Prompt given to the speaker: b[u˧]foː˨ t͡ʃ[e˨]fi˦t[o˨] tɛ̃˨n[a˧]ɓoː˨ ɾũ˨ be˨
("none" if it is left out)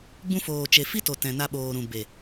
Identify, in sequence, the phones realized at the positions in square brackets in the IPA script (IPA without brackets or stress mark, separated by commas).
ũ˧, e˨, o˨, a˧